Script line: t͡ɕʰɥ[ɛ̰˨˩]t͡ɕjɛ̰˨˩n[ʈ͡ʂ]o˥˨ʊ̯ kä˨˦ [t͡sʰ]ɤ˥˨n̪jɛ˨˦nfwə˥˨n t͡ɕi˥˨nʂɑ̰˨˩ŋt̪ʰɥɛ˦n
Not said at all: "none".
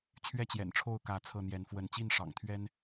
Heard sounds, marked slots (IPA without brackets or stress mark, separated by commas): ɛ˥˨, ʈ͡ʂʰ, t͡sʰ